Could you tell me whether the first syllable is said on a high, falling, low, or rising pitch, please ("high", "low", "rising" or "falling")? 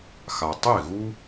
low